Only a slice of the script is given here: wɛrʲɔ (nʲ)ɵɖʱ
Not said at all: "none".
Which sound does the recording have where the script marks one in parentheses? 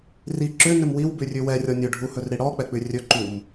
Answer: nʲ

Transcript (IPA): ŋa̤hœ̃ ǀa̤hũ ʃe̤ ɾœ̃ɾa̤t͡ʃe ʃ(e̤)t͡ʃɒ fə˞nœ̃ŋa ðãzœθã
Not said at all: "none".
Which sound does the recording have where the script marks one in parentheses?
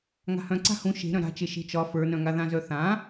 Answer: e̤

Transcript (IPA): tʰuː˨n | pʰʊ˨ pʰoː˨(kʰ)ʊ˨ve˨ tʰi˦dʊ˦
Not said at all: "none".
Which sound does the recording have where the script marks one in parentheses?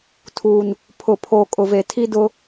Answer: kʼ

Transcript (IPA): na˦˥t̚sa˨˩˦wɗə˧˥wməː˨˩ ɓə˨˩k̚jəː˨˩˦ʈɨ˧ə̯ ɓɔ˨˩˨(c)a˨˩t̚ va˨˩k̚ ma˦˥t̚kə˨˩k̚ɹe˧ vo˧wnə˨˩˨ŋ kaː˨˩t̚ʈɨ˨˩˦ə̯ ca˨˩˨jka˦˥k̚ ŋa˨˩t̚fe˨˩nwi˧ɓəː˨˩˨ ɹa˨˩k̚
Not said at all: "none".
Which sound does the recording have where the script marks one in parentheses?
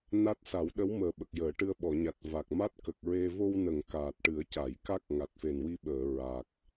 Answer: ɲ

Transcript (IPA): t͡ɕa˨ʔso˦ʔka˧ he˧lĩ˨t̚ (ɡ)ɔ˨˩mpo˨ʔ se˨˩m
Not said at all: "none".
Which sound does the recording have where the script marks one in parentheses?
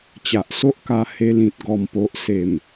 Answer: ɡ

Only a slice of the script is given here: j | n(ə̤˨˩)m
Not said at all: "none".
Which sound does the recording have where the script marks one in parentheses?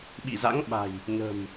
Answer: ə̤˨˩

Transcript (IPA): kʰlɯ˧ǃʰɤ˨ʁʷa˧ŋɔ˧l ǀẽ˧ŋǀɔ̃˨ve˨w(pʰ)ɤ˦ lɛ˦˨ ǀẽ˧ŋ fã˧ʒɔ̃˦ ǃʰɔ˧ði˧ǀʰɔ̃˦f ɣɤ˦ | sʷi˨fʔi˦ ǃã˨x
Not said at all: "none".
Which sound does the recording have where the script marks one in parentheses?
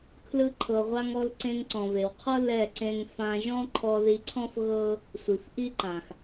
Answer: qʰ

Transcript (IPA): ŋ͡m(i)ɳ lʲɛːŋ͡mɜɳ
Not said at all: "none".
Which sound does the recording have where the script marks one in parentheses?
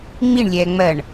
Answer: i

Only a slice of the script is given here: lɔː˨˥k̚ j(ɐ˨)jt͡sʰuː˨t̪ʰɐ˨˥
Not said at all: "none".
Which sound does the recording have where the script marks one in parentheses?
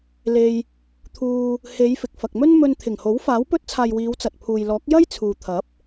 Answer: ɐ˥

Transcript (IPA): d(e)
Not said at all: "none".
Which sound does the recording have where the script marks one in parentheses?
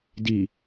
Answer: i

